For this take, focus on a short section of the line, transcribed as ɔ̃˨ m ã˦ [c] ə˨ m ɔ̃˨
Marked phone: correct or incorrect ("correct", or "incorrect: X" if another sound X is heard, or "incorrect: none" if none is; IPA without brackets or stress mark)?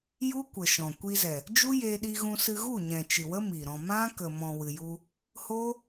incorrect: k